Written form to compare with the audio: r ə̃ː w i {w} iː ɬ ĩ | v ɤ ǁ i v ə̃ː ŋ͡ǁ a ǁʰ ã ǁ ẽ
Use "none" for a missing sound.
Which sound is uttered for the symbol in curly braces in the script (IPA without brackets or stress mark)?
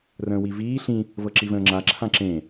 v